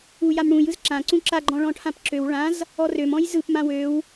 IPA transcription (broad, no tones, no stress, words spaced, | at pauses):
ujam ɽũj ɯzǁãǀũ ǁaɡ͡ǃɔ̃ ɭɔ̃ʈʰãpǁøw ɭãz | ɔrøm ɔ̃jzɯp mãwøw